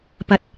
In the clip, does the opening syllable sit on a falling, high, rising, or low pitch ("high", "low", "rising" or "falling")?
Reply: low